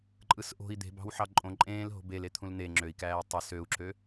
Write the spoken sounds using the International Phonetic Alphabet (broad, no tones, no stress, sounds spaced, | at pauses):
ǃʼ ɯ s ʔ o̤ i̯ d̪ e̤ b ɑ̤ w ħ ɑ ǃʼ õ ǃʼ ẽː l ɦ o̤ b e l e t̪ʰ ũ l n̪ e ŋ͡ǁ ø i̯ k æː i̯ tˤ e s ø u̯ ǁ ø